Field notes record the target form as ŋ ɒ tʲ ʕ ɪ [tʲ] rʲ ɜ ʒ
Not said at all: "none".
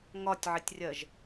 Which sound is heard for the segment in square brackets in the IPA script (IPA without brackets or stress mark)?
tʲ